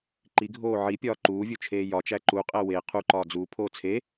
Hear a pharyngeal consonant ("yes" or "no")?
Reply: yes